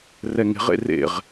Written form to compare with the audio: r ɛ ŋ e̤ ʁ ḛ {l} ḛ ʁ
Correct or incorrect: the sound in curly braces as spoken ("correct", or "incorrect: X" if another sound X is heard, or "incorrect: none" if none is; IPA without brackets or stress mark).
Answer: incorrect: r